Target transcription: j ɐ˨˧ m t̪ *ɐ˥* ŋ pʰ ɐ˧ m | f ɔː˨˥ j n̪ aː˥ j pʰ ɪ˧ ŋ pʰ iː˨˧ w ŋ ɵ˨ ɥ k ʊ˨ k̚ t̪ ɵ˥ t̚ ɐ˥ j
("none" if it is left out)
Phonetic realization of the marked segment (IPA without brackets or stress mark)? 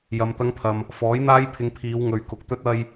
ɐ˥